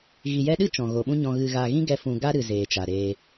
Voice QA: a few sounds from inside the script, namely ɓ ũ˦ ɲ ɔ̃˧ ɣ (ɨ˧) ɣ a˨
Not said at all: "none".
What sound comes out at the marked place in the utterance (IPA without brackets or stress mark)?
ɨ˨